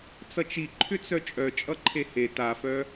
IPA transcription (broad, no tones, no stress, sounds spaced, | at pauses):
t͡s ʌ t͡ʃ i ǃʰ ʏ t͡s œ t͡ʃʼ œ t͡ʃʼ ʌ ǃʰ e h e t a f œ